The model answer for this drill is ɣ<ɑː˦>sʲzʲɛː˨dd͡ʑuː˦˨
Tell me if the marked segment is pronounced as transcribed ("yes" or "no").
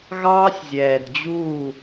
yes